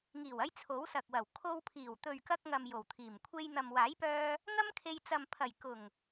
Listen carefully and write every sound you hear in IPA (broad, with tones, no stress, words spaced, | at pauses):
ŋiː˨˩wɐ˧j t͡sʰo˨˥wsɐ˨k̚wɐ˨˩w kʰo˧wpʰiː˨˩w t̪ɵ˨ɥkɐ˧k̚ŋɐ˨m jo˨˩wt̪ʰiː˨˩m kʷʰe˧jn̪ɐ˨m waː˨˥jpœː˧ | ŋɐ˥mkʰe˧j t͡sɐ˨mpʰɐ˨˩j kʊ˨˩ŋ